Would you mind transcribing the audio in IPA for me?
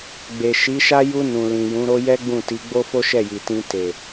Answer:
ɡ͡b e˨ ʃ i˨˦ ʃ a˦ j u˧ n ũ˨ l ĩ˨ j ũ˨˦ ɾ o˦ j ɛ˦ ɡ͡b ũ˦˨ t i˨˦ ɡ͡b o˦ f o˦ ʃ ɛ˦˨ j i˨ t ĩ˧ t e˨

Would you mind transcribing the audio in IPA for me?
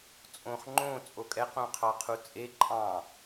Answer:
t͡sʼ õ χ ŋ͡ǃ õ t͡sʼ o kʼ ɛ q õ qʰ ɑ qʰ u t͡sʼ e ǃʼ ɑ̃

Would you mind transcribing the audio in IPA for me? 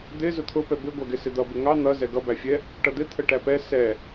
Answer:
d̪ ɪ z ʊ t̪ʰ ʊ p ɛ b ɪ ɡʷ æ ɡ ɪ s ɪ d̪ ʌ b ɪ ŋ ɑ n̪ ʌ z ɛ ɡ ʌ b æ fʲ ɛ | ʈ ʌ d̪ ɪ t̪ʰ ə ʈ æ p ɛ s ɛ

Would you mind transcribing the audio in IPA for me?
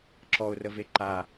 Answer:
ǁ ɔ ʊ̯ r ə v e ǃ a

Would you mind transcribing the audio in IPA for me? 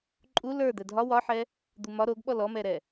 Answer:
ǃʼ u l ə˞ d̪ ɛ dʱ ɒ w ɒ ħ ɛ | d̪ u m ɒ ɾ o ɡ ɓ ɔ l ɔ m ɛ ɾ ɛ

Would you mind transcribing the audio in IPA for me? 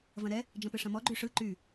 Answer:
v ɐ̃ ɾ ɛ | d͡ʒ ɐ̃ p ɨ ʂ ɐ̃ m ɔ ɡ͡ǃ y ʂ ɯ ǃ y

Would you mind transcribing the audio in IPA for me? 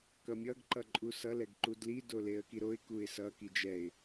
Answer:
k ʌ mʲ ʌ ɡ ǃ ʌ ǃʼ u s ʌ l ɛ ɡ ǃ u d l i d o l e ə̯ k i ɾ o ɪ̯ k u ɪ̯ s ʌ k i d͡ʒ ɛ ɪ̯

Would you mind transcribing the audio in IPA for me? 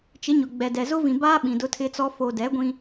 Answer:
t͡ʃ ɪ˨˦ ɲ ʊ˨ ɡ͡b ɛ˨ d ɛ˨ z ʊ˦ v ĩ˨ b aː˦ ɓ ĩ˨ d ʊ˦ tʰ ɪ˦ t͡s ɔ˦ f o˨ d ɛ˨˦ ɡʷ ĩ˦

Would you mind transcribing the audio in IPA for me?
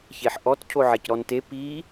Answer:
ç e ħ ʔ ɔ t cʰ o ʕ e c ɾ ɔ n t e p i

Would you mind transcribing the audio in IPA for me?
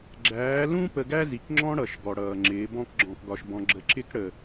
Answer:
ɡ͡ǁ æː˨˦ l ũ˦ p ə˧ ɡ æ˦ z i˨ k ŋ͡ǁ ɔ̃˦ ɽ ʌ˨ ʃ ɡ ɔ˨ ɽ ʌː˨ ŋ͡ǁ ɪː˨˦ b ɔ̃˦ k ɡ͡ǁ ɔ̃˧ k ɡ ɒ˧ ʃ b ɔ̃˧ ɡ͡ǁ ə˨ ǁ ɪ˧ k ɽ ə˨

